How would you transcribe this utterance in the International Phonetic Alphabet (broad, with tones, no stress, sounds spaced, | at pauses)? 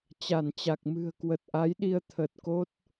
t͡ɕ a˧˩ n t͡ɕ a˨˩ k̚ m ɨ̤˨˩ ə̯ k w ə˨˩ t̚ ʔ a˨˦ j ɗ i˧ ə̯ t̪ʰ ə˨˩ t̚ k o˦˥ t̚